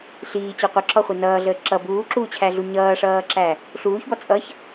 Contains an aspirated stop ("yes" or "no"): yes